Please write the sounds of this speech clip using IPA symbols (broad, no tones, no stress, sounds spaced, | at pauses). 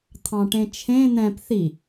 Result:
t̪ʰ ɑ̃ ʈ ẽ t͡ʃʰ ẽ n̪ ɛ̃ p θ i